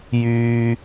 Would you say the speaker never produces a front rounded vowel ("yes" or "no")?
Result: no